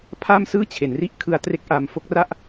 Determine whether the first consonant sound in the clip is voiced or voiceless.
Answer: voiceless